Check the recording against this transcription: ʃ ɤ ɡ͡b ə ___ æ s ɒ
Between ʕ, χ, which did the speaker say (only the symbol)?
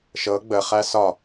χ